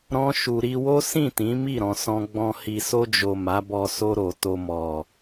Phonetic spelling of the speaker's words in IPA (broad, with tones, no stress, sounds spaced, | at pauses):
ɾ ɔ̃˦ ʃ u˧ ɾ i˧ w o˦ s ĩ˦˨ t ĩ˨˦ m i˦˨ ɾ ɔ̃˨ s ɔ̃˧ ɡ͡b ɔ̃˧ h i˨ s o˧ d͡ʒ o˨ m a˨˦ b ɔ˧ s o˧ ɾ o˨ t o˧ m ɔ˨